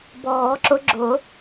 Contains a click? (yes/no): yes